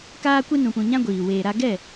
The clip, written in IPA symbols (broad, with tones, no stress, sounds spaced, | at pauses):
k aː˦ kʷ e˦ n ũ˧ p ũ˧ ɲ ã˦ ɡʷ iː˨ w eː˨ ɾ a˧ ɡ ɛ˦˨